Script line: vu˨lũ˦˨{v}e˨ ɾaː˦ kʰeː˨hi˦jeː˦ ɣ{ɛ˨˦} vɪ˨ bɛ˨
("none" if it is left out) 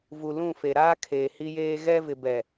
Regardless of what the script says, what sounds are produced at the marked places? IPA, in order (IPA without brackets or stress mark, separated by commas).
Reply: f, ɛ˦